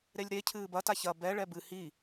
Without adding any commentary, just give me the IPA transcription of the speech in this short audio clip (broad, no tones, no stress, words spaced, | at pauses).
ɾelʲɾe cʰɨːbɐ taçɐ bɛ ɭɛbɨ hi